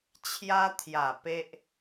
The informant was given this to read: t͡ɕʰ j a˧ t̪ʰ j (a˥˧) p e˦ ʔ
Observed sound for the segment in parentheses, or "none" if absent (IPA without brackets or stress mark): a˨˩